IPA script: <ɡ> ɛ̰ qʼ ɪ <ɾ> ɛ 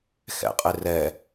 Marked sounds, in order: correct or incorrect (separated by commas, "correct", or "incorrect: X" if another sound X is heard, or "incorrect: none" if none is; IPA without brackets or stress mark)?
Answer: incorrect: x, incorrect: r